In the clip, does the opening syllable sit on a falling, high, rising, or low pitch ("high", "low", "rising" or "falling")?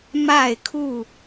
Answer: falling